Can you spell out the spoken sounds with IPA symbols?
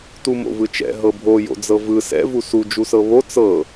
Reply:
t u m o̰ v ɯ t͡ʃ ɛ̰ ɦ ɤ bʱ o j o̰ d͡z ɤ v ɯ s ɛ̰ v u s u d͡ʒ u s ɤ β o t͡s ɤ

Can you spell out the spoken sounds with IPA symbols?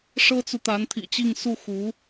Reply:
ʂ ɤ˥ t͡s u˨ t̪ a˧˥ n t̪ʰ ḭ˨˩ t͡ɕ i˥˧ ŋ s u˥˩ x u˧˥

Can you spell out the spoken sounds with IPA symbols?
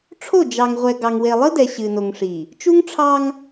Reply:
ʈ͡ʂʰ o˦˨ d͡ʒ ɑ˨ ŋ ʁʷ ɛ˨ ɡ ɑ˨ ŋ w e˨ lˠ ɨ˦ d ɛ˨ ɕ ɨ˨ n o˨ ŋ ʂ i˨ | t͡ʃ u˦ ŋ ʈ͡ʂʰ ɑ˦ ŋ

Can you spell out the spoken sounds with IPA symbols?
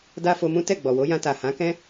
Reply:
d a˦ f o˧ m ũ˦ t ɛ˦˨ ɡ͡b ɔ˨ w o˨˦ j ã˧ t a˨ h ã˨˦ k ɛ̃˦

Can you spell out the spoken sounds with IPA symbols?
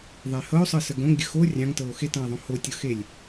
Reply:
ðˤ e h ɤ o̯ sˤ ɤ s ə ɡ õ ŋ ɡʲ ə x o rʲ ɑ̃ ŋ t ɤ o̯ x e t ɑ̃ e̯ ðˤ õ h o tʲ ɤ x e lʲ

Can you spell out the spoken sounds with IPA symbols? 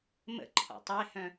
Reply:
m ə̰ ǃʰ ɔ̰ tˤ e h œ̃

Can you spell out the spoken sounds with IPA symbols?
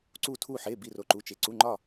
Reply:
ǀ u˧˩ tʰ u˧˩ ħ e˩˧˩ b i˧˩ r o˩˧˩ ǃ u˩˧˩ t͡ʃ e˩˧˩ ǀ u˩˧˩ ŋ͡ǃ ɒ˧˩

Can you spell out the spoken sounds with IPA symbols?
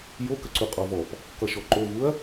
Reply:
j o k ə ǀ u qʼ ɔ v ɔ p | k ʌ ʃ ɔ ǃ o v u ɐ̯

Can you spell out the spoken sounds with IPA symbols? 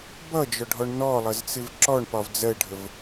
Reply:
b ʌ d͡ʒ ɒ ɖʱ ɔ ɳ n ɔ lˠ ʌ z t͡s ɪ v ǁ ɔ ɳ p ɒ v d͡z ɜ ɖʱ ə v

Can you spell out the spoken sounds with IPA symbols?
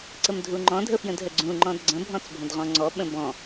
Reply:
ǀ ə m dʱ u ŋ͡ǃ ɔ̃ dʱ ə f j ə̃ d ɦ ə ɡ͡ǀ ũ ŋ͡ǃ ɔ̃ d ɡ͡ǀ ə̃ bʱ ɔ̃ t͡s bʱ ə̃ d ʁ ɔ̃ ŋ͡ǀ ɔ ɓ ə̃ b ɔ̃

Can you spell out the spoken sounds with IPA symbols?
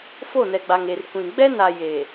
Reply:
f o˦˨ n ɛ˨ ɡ͡b a˨ ŋ e˨ r kʷ ĩ˨ ɡ͡b ɛ˦ n a˨ j eː˨

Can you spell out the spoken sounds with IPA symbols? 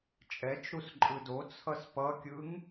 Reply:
t͡ʃʼ ɛ t͡ʃ ɾ u s ǃʼ ɯ d o t͡sʰ ʌ s p ʌ kʲ ɯ ŋ

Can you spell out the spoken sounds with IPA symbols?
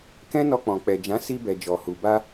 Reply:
k ɛ̃˦ n ɔ˧ k͡p ɔ̃˨ k͡p ɛ˨ d͡ʒ ã˨˦ s i˧ b ɛ˨ d͡ʒ ɔ˨ h u˨ b a˧

